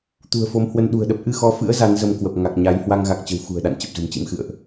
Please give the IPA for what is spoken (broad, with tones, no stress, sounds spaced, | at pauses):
t̪ ṳ˨˩ ə̯ f o˨˦ m h w ə˧ n ɗ ṳ˨˩ ə̯ ɗ ə˦˥ p̚ ʔ ɨ˧ x ɔ˨˦ f ɨ̰˧˥ ə̯ z a˨˦ n z ə˧ m k w ə˨˩ p̚ ŋ a˨˩ k̚ ɲ a˨˦ j h w a˧ ŋ ɣ a˨˩ k̚ t͡ɕ ə̤˨˩ w x ṳ˨˩ ə̯ ɗ a̰˧˨ n t͡ɕ ə˨˩ p̚ z ə̤˨˩ m t͡ɕ ḭ˧˥ m x ɨ̰˧˨ ə̯ ʔ